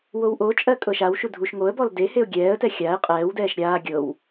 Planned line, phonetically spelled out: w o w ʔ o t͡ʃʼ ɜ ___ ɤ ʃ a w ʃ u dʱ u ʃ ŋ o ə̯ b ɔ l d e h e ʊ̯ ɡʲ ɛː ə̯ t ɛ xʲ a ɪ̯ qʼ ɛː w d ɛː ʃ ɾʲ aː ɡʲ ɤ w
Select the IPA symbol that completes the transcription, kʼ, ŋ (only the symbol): kʼ